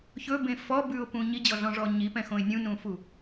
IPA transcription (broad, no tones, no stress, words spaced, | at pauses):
çɵbẽ fɔbʉʊ̯pũ ɲid͡ʑɔɮɔ̃ʐɔ ɲipɛ̃xõɪ̯ nʲũnũfu